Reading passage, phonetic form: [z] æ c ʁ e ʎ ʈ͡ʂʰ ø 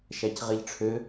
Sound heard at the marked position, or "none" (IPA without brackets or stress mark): ʃ